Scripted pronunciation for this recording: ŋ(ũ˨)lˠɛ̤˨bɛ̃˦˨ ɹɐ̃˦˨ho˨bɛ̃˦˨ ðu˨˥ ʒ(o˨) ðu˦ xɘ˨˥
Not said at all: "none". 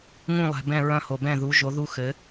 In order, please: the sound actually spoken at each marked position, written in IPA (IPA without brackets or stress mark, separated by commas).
ũ˦˨, o˨˥